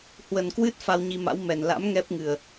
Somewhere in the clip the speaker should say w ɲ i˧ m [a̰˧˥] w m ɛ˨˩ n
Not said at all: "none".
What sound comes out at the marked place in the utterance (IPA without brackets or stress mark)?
a̰˧˥